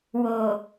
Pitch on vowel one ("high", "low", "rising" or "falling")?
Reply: low